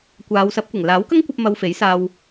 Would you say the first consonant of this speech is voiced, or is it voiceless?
voiceless